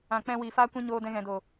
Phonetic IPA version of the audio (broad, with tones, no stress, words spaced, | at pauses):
ã˨k͡pɛ̃˧ wiː˨faː˦ kʷɛ̃˦ɲoː˧dɛ̃˧ ɣɛ̃˨ do˨